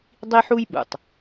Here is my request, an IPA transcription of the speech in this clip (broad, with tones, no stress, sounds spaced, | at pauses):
dˤ i˥ ħ u˥ j ɓ ṵ˩ tˤ